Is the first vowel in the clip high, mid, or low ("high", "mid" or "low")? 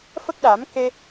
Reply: mid